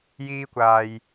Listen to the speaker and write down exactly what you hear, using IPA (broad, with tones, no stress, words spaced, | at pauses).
jiː˥kʷaː˧j